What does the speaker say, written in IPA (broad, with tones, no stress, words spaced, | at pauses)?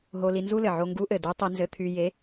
ɦo˧li˧nzu˥lɘ˩ ʕo˧ŋɡu˧˥ʔɘ˩ du˧˥ tˤe˧nzɘ˧t̪ʰy˧ je˧˥